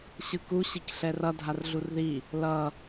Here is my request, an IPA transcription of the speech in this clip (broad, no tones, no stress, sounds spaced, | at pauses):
ɕ ɯ k u ɕ i k ɬ ɛ r ʌ dʱ a r ɮ u r ð i | l ʌ